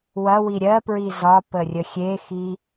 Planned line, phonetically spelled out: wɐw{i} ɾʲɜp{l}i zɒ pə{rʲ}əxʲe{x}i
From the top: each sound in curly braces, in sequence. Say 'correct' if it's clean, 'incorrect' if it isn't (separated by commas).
correct, incorrect, correct, correct